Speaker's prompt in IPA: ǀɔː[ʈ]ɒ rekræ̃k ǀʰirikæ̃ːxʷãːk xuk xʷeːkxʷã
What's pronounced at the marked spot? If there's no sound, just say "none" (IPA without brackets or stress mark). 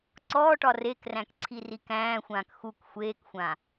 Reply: ʈ